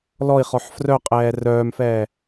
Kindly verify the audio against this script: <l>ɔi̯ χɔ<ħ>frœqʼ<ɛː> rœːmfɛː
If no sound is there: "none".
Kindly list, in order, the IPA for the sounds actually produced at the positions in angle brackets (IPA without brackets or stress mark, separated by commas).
l, ħ, ɛː